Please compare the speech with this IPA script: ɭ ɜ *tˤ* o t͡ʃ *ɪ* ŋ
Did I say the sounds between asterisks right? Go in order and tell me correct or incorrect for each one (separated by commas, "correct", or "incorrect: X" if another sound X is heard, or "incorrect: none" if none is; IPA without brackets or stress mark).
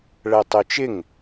correct, correct